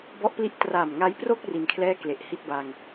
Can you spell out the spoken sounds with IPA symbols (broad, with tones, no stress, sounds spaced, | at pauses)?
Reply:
b ɔ˦˥ ʔ p l i˦˥ ʔ t r aː˨˩ m ŋ a˦˥ j p r o˥˩ k̚ r i˧ n kʰ l ɛː˥˩ k l e˨˩ ʔ h i˥˩ t̚ b a˧ ŋ